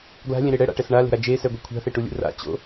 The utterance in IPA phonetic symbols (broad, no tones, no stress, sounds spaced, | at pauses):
ɡ l a̤ lʲ ẽ ɾ e ɽ ɛ ɽ a̰ ʈ ɛ s ɳ a l e̤ ɾ a d͡ʒ e s ɛ ɡʷ ɛ kʷʰ a̤ θ e ʈ u lʲ ṵ r a̰ t͡ɕ o̰